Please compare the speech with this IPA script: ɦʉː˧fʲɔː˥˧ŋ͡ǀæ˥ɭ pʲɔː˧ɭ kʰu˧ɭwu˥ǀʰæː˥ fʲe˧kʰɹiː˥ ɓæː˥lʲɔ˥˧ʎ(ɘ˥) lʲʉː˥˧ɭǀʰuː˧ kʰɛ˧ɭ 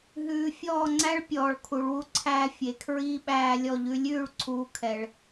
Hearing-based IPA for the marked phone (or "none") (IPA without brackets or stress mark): ʉ˥